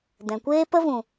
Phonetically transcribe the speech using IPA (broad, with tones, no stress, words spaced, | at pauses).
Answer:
dɛ̃˨kʷeː˦ pə˦vũ˨